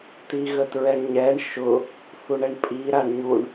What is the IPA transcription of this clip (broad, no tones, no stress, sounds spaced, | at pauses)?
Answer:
t i ɣ ə t ɹ ɛ ɳ ɲ ɛ ɳ ʃ ʊ | θ u ɳ ɛ ɳ pʼ i ɾ a ɳ ɲ u ɳ